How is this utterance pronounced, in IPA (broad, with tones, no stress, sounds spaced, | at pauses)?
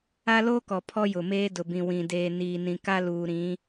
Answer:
a˦ l oː˦ k ɔ˨ pʰ ɔ˦ j ʊ˨ m eː˦ d ʊ˨ b ĩ˨ w ĩ˨ d eː˨ n iː˨ n ĩ˨ k a˦ l uː˨ ɾ ĩ˨˦